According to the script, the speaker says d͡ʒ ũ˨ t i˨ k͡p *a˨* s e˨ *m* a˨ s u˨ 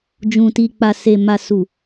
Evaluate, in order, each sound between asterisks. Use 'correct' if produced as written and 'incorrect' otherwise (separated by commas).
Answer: correct, correct